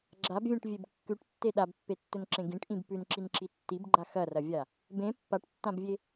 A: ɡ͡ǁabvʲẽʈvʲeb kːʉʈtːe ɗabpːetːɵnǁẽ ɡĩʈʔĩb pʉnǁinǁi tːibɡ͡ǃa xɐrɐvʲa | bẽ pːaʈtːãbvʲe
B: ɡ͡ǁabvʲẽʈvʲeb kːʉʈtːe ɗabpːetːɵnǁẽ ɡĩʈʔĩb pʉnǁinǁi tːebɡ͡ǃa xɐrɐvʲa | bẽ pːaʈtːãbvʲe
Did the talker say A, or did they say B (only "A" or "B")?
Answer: A